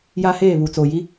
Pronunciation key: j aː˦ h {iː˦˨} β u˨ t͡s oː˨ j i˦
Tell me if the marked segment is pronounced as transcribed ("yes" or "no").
no